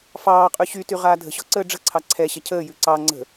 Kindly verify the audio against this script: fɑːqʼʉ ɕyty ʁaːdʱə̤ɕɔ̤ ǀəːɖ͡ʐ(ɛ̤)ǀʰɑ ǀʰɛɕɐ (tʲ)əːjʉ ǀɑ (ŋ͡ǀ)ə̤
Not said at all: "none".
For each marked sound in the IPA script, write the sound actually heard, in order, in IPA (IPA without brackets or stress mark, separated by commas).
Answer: ə̤, cʰ, ŋ͡ǀ